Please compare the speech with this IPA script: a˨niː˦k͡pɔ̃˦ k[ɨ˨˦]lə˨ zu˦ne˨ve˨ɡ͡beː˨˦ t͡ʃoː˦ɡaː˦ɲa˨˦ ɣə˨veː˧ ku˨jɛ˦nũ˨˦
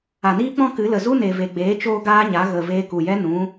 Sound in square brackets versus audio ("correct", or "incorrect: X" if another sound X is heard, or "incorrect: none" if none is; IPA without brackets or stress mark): correct